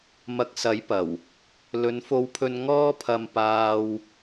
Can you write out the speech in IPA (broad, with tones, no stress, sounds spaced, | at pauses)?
m ɐ˨˥ k̚ s ɐ˨˥ j p ɐ˨˩ w | l ɵ˨˧ n f o˧ w pʰ ɵ˧ n ŋ ɔː˥ pʰ ɐ˧ m p aː˧ w